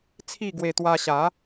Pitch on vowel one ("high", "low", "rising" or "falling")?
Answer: falling